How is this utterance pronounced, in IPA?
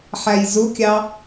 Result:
ħæjzʊkʲɑ

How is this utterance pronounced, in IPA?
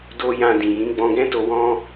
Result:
do˦ jã˧dĩ˨ jĩ˨˦ɡ͡bɔ̃˧ɡɛ̃˦to˧ wɔ̃˦

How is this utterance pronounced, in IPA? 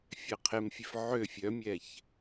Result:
fʲɛqʰemfʲef ʕø fʲœmʲɛç

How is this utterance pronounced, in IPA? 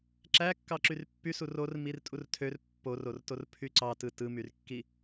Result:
ǁækːɑǁyr pːysu rormir tʼurtʰør pːorortor pʰyǀɑtɯ tɯmyrkːi

